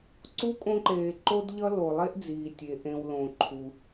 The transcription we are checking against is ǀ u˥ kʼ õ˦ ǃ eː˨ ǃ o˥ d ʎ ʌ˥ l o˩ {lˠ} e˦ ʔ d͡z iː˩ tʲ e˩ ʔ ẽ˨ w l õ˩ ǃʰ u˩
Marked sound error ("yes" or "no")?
no